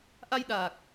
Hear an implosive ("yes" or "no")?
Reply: yes